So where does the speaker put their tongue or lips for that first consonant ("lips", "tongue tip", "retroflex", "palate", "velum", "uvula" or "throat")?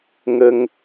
velum